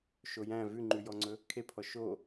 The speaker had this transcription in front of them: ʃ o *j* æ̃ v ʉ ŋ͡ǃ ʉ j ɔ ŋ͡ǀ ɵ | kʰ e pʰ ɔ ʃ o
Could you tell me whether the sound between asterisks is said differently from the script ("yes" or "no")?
no